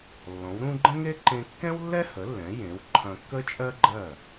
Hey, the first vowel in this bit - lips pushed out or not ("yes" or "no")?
yes